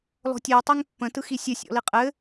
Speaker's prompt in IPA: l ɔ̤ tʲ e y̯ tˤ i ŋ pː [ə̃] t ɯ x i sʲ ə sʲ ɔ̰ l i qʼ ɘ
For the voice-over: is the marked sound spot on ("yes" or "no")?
yes